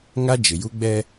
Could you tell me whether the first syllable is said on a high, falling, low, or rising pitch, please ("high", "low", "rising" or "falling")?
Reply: high